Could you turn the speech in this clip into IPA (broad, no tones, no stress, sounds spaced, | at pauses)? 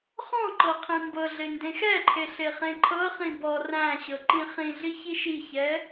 χ ɔ̃ ǃ ɤ qʰ ĩ m b ɤ ɮ e n d ẽ x ɛ ǃʰ e ɬ e χ ẽ ǃʰ ɤ χ ĩ b ɔ r æ̃ ɕ ɤ ǃ ĩ χ ĩ ɮ i ç i ʃ i ç ɛ